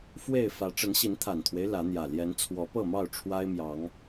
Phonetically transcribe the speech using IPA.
fwe˥˨ɪ̯fä˨˦ ʈ͡ʂə˨˦nɕi˨˦nt̪ʰa˨˩nt̪ʰwe˦ɪ̯ lä˨˦n̪jä˨˩ ljɛ˨˦nt͡sʰwɔ˨˦pɤ˥˨mɑ˥˨ʊ̯ ʈ͡ʂʰwa˦ɪ̯mjɑ˨˦ŋ

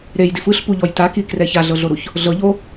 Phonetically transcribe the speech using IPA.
ɾejdif ɯɬpuʎɔj takikrɛ çaɮɤɮoɾuç | ɮɤʎo

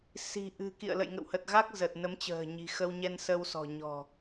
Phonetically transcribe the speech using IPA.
si̤˨˩ ʔɨ̤˨˩kḭ˧˨ə̯ lə̰˧˨jŋə̰˧˨whə˨˩t̚ɣa˦˥k̚ zə˨˩t̚ nə˨˦mt͡ɕə̤ː˨˩ɲi̤˨˩ xə˧wɲɛ˧nsə˧wsɔ̤˨˩ ɲɔ̤˨˩

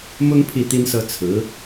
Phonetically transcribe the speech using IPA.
mʊ˥ŋ pʰi˥˩t̪i˥nsɤ˥ t͡sʰɹ̩˧˥

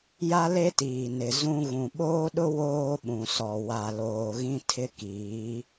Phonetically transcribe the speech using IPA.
ja˦le˦tiː˨nɪ˨ zũ˦ ɣũ˨ɓoː˦ɗʊ˦ woː˦ɓũ˨sɔ˨ wa˨loː˨ɣĩ˦ tʰɪ˦kiː˨˦

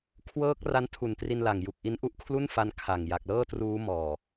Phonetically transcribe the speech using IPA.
kʰwɤː˦˥k̚ ra˦˥ntʰu˨˩ntri˧nla˨˩ŋ ju˨˩k̚ʔi˦˥n ʔu˦˥ʔkʰlu˥˩nfa˧n kʰa˨˩ŋ ja˨˩k̚lɤː˥˩truː˦˥ mɔː˨˩

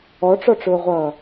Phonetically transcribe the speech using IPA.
ɔʈ͡ʂɔʈ͡ʂʊːʁʷʌː

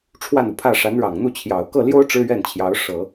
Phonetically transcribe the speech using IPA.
ʈ͡ʂʰwa˥˩nu˩pʰä˥˩ ʂa˧˥nɻɑ˨˩ŋn̪u˥˩ t͡ɕʰjɑ˨˩ʊ̯ kɤ˥˩ljo˥ʊ̯ ʈ͡ʂɻ̩˥ɥɛ˥˩nt͡ɕʰjɑ˧˥ʊ̯ ʂɤ˨˩˦

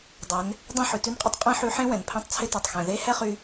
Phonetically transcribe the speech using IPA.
dˤɛ˩˧n | dˤɛ̃˥ħʉ˩tʉ˥nqʼɪ˥tˤ qʼẽ˥ħy˧˥ħẽ˥ wɛ̃˩npʰɛ̃˧˥tˤt͡sʰɪ˧˥te˩tˤ xɛ̃˩ðe˧˥ hɛ˥χy˧

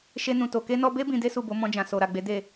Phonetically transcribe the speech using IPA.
ʃe˧nũ˨to˨ ke˧nɔ˧be˦ bĩ˧de˦su˦˨ bo˨˦mɔ̃˧d͡ʒã˨ so˨ɾa˨ɡ͡be˨˦ de˦˨

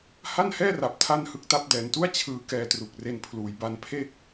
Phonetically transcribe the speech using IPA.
ha˥˩nhɛː˥˩ra˨˩p̚ tʰa˥˩nhɯ˦˥k̚ta˦˥p̚ dɛː˩˦ntu˥˩a̯ t͡ɕʰɯː˧ kɛː˧tru˨˩k̚ re˧npʰluː˩˦jba˧npʰe˥˩k̚

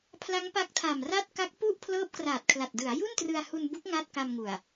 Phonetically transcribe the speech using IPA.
pʰla˦˥ŋpa˦˥k̚tʰa˨˩mra˥˩t̚ ka˦˥k̚pu˥˩ʔ pʰlɤː˦˥p̚kraː˨˩t̚kʰla˨˩t̚ dɯ˩˦a̯ ju˥˩ntrɯ˧a̯hu˧nbu˦˥k̚ ŋa˥˩t̚ka˧mŋu˨˩a̯

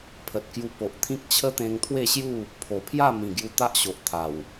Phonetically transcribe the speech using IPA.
pʰə˨t̚kju˧ po˨ʔt̪ʰĩ˦k̚ t͡ɕʰə˦t̪ẽ˧ŋt̪ʰwe˥˧ɕju˥˧ | pʰo˨˩pʰja˥˧mĩ˨˩ ɡju˧t̪a˦ʔɕo˨ʔ t̪ʰa˨˩w

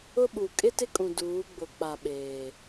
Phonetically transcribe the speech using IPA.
ʊ˦ɓu˨ kʼɪ˦tɪ˦kʼũ˨ duː˨˦ɡ͡bʊ˨k͡pa˨ ɓeː˨

